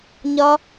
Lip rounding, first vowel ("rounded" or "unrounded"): rounded